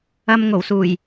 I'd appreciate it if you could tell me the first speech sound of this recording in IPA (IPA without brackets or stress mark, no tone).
ɐ